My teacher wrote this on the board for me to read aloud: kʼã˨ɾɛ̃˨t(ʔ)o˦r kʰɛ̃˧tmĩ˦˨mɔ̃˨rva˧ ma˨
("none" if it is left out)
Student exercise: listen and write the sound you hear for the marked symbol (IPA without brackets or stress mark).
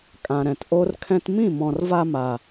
ʔ